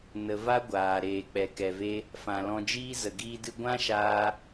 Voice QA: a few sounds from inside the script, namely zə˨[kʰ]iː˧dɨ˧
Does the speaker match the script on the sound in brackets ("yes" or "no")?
no